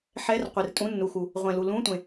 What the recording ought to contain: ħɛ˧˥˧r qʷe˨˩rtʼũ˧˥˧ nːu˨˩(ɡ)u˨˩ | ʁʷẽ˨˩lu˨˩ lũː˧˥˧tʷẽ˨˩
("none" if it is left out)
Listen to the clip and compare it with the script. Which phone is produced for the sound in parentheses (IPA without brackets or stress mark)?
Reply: x